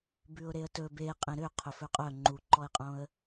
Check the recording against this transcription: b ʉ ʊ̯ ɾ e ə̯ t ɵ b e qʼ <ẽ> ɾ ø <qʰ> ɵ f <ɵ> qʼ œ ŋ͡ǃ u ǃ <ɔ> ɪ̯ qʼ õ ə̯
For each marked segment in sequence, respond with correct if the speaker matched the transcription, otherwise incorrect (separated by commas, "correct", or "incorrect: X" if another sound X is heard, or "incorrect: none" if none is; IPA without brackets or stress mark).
correct, correct, correct, correct